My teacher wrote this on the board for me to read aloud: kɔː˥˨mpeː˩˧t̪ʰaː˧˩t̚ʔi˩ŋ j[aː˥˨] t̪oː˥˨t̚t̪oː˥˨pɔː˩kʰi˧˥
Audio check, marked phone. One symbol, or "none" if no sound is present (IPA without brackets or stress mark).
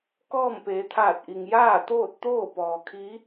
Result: aː˥˨